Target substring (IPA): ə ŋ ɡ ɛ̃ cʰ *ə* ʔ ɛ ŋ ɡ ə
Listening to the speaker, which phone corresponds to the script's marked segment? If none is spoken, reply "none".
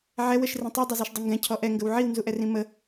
ɔ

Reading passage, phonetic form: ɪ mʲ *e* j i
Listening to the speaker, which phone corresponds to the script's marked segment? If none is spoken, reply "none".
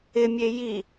e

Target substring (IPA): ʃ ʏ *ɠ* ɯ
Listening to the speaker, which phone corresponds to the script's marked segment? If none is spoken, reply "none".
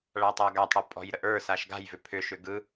ɡ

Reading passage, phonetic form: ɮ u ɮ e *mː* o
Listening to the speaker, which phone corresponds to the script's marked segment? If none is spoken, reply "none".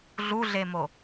m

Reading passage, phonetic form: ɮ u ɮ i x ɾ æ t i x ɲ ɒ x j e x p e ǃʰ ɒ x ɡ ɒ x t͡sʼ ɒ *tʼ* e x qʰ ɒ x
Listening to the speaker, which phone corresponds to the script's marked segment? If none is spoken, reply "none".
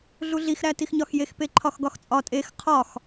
tʼ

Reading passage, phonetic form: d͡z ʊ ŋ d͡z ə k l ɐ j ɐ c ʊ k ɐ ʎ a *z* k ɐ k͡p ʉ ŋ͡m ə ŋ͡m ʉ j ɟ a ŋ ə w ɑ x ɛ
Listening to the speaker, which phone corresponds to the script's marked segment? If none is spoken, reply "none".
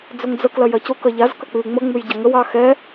z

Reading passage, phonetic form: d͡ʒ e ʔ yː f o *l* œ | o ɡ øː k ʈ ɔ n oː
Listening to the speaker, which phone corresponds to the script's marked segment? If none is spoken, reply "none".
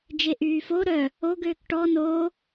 ɾ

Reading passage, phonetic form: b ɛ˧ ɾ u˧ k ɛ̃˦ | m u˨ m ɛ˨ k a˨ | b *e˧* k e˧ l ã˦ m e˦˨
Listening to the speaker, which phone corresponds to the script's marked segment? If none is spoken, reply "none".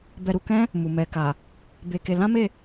e˧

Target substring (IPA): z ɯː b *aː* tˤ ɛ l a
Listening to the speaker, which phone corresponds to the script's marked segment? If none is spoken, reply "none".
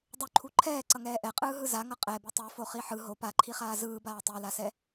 aː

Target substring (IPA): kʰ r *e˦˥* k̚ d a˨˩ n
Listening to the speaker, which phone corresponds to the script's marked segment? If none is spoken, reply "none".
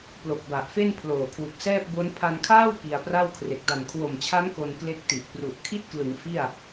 e˨˩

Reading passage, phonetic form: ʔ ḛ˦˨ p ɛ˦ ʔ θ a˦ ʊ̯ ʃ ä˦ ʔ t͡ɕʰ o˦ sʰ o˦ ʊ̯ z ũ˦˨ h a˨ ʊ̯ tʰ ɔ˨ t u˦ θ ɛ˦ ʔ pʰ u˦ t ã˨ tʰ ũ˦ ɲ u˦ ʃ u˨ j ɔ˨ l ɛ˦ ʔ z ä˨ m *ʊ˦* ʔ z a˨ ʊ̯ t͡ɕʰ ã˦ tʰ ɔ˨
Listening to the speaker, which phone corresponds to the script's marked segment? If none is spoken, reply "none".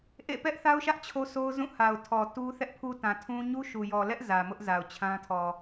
ʊ˦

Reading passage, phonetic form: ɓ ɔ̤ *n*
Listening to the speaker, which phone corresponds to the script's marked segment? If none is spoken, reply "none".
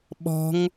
ŋ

